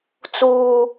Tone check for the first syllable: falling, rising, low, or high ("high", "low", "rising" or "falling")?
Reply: high